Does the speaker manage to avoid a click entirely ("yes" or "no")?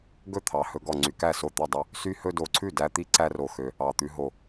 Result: no